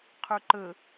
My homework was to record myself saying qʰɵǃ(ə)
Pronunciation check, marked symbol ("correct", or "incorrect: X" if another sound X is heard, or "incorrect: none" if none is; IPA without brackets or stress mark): correct